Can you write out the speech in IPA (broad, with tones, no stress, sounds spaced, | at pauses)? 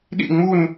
ɗ ḭ˥˧ ŋ͡m u˥˧ n